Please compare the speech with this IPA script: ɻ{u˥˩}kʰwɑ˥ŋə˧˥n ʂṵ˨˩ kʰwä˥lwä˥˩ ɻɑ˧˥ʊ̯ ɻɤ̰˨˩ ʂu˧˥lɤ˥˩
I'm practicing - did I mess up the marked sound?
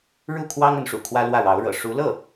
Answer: no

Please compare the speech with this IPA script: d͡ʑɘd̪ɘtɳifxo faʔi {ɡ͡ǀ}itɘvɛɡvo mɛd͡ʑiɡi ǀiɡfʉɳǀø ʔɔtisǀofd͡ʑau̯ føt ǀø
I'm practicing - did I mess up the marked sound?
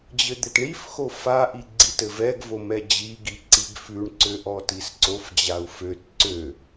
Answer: no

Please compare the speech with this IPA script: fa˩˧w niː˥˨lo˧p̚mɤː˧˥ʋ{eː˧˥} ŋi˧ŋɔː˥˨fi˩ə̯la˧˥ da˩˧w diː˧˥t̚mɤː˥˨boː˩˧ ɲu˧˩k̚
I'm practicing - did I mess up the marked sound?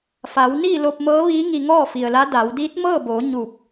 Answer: yes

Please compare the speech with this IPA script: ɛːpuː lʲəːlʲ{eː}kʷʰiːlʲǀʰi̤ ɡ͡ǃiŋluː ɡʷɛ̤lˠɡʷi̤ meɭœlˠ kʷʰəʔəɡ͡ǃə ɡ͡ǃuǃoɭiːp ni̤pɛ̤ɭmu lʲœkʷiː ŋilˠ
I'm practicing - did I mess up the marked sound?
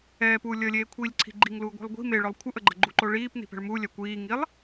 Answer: no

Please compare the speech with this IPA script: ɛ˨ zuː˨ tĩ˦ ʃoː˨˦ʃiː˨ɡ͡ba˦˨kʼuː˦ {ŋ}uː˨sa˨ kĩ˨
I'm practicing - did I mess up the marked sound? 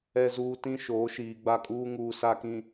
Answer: no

